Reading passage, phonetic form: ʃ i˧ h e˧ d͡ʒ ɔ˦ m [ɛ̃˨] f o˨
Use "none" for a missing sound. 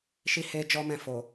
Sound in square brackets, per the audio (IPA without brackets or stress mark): ɛ̃˦˨